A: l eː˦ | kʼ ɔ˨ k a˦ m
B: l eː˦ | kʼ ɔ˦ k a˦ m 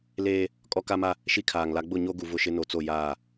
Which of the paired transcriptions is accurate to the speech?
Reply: B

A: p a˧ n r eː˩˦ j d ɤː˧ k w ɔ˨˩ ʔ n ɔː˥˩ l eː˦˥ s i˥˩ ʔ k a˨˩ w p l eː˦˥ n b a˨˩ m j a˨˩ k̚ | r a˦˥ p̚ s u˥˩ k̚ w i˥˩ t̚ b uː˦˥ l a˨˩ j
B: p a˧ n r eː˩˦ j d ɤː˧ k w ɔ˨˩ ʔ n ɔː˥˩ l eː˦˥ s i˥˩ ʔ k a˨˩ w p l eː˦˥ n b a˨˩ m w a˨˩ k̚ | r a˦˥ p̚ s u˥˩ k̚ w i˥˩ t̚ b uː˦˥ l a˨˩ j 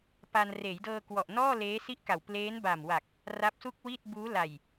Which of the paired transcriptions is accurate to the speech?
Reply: B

